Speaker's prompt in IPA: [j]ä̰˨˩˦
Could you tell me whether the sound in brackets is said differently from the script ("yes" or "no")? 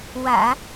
yes